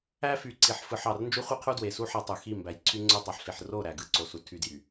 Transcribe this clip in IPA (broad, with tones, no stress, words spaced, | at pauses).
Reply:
æ˦fy˨ǀi˨ħfɯ˨ħ ɑ˨r nd͡ʒu˦χʷi˦qʰu˦ dwe˨su˦ ħæ˦tˤu˨ xi˦˨mbæ˨j ǀʰy˦ŋ͡ǀo˦tˤɑ˨ħɬi˨ħ ro˦˨ ɾæ˨ɡɯ˦ǀo˨su˨ tʰy˦djy˨